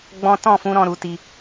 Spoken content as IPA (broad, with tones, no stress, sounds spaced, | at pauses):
ɡ͡b ɔ̃˧ t ɔ̃˦˨ f ũ˧ ɾ ɔ̃˧ ɾ u˨˦ t i˧